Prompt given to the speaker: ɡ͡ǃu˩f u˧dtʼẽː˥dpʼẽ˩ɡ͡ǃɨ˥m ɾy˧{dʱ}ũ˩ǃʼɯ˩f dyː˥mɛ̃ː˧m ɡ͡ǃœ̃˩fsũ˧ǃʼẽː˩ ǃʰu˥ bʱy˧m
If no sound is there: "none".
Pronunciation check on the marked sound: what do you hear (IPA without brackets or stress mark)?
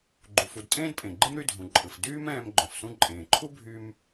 dʱ